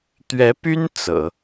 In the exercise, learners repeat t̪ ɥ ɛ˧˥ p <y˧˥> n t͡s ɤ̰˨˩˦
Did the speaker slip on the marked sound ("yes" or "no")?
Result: yes